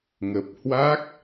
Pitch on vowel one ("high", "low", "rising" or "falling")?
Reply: low